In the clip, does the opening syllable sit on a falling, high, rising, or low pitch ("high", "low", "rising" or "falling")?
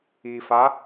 low